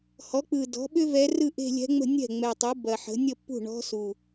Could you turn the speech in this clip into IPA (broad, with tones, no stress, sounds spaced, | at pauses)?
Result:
h ɔ˩˥ k͡p ɯ˨˩ d ɔ̤˩˥ ɓ ʏ˥ v ɛ˧˥ r ɯ˥˧ ʔ e̤˥˧ lʲ ɛ̤˧˥ ŋ͡m ə̤˥˧ nʲ ɛ̤˥˩ ŋ͡m ɛ˨˩ tˤ u˩˥ b ɐ˨˩ ħ ə̤˩˥ nʲ ə˥˧ pː ṳ˥˩ ɳ ɔ̤˧˥ s u˨˩